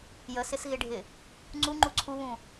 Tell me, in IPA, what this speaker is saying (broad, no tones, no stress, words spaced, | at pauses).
jəsɪsɣɪɖʱɪ | ŋ͡ǀuŋ͡ǃu ǀʰuβũ